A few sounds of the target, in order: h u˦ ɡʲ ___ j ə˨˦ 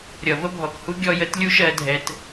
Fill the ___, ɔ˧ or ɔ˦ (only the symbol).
ɔ˧